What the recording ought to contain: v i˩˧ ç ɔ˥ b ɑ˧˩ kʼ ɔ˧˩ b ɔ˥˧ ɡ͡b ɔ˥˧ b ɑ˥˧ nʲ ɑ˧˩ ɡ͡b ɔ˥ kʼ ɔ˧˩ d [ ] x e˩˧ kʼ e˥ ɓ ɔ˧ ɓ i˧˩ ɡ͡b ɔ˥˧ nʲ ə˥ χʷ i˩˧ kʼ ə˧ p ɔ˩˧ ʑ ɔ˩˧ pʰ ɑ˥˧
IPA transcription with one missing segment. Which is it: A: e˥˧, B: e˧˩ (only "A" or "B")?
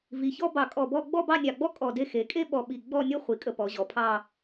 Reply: A